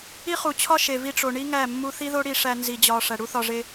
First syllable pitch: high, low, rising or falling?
high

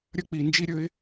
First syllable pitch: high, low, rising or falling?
falling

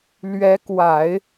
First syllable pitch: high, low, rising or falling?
rising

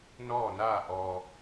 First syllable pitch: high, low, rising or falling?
falling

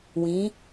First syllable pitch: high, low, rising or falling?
rising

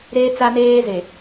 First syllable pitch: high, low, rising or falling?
high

